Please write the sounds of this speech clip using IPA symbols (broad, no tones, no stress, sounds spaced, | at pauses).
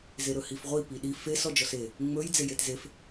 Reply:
z e ɾ ɵ h i f ʁʷ i p i ɗ i f e s ɔ d͡ʒ ɔ s e | ŋ͡m ɵ j d͡z e j e t z e f